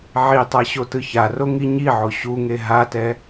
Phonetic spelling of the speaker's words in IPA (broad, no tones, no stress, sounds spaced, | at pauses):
ʕ i tˤ a ɕ o t ɯ ç a r o ŋ i ɲ i ʕ o ɕ u ŋ e ɦ a t ɛ